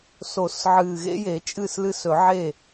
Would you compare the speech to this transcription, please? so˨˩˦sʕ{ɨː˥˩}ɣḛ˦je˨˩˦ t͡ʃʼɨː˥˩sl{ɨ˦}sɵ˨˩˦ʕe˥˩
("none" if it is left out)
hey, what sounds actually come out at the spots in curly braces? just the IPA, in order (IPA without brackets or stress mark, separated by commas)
ɨː˨˩, ɨ˦